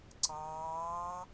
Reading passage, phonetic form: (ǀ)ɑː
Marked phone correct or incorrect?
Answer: correct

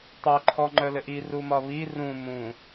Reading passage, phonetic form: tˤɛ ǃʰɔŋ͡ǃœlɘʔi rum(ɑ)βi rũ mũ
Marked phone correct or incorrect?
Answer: incorrect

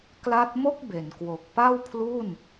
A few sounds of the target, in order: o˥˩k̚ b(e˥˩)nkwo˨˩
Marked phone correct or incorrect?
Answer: incorrect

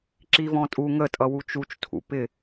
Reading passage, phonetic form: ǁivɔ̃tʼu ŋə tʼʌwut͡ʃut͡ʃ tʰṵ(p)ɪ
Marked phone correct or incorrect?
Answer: correct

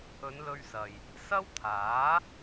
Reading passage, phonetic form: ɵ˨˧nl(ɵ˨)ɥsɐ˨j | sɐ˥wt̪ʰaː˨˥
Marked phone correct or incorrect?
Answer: incorrect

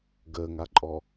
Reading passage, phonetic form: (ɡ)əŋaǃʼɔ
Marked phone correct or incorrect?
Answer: correct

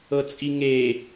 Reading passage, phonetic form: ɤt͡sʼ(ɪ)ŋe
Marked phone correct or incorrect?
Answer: incorrect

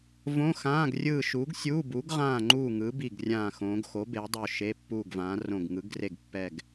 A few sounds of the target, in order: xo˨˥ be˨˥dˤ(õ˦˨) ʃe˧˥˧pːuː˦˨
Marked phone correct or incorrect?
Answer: incorrect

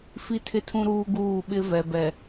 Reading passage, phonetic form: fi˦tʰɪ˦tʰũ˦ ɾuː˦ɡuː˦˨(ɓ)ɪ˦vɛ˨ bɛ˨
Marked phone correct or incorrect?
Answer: correct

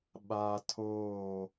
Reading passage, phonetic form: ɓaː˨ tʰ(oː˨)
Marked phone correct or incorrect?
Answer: incorrect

